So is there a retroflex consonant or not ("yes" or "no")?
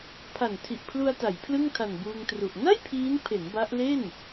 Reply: no